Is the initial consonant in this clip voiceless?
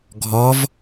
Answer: no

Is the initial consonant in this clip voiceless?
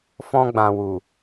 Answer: yes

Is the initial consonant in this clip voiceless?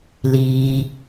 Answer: no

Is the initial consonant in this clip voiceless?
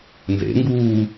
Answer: no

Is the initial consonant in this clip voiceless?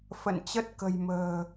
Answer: yes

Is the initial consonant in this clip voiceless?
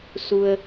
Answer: yes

